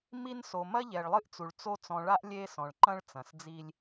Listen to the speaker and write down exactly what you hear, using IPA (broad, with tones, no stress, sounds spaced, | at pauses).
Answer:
m i˦ n s o˨ m ɐ˦ ʎ ɛ˨ ɭ lˠ ɨ˦ ʔ t͡s u˨ ɭ t͡s o˦ t͡s ɔ̃˨ ɭ a˦ ʔ lʲ e˦ s ɔ̃˨ ɭ ǃ ɐ̃˦ ɭ t͡s ɐ̃˨ s d͡z i˦ lʲ